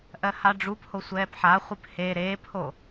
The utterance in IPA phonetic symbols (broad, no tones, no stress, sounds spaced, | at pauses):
ʔ ɜ h a ɖ͡ʐ u p h o sʷ ɛː p ħ a χʷ ɨ p h e ɾ eː p h o